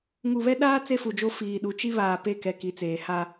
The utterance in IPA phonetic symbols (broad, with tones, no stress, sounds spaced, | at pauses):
ŋ u˨ β ɛ˦ ɗ aː˦ t͡s e˦ f u˨ d͡ʒ o˦ f iː˨ ɗ u˨˦ t͡ʃ i˦ β aː˨ p e˦˨ k ɛ˨ k i˨ t͡s eː˨ h a˦